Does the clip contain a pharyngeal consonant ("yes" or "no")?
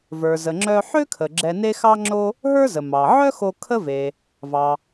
yes